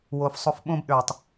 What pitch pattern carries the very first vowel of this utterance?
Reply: low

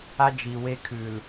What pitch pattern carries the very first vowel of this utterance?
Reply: high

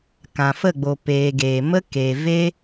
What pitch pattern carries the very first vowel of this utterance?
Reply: low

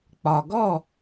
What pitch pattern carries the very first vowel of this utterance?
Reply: low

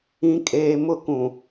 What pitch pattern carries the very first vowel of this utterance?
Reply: low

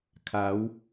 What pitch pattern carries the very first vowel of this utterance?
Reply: rising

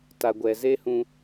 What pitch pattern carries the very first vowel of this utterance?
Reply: low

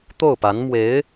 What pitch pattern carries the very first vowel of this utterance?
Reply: falling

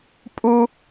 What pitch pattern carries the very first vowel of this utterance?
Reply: high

